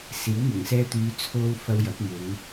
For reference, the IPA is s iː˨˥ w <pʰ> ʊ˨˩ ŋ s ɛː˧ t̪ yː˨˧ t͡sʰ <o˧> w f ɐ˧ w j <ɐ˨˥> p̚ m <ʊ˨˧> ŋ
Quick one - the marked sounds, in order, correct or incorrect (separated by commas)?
incorrect, correct, correct, correct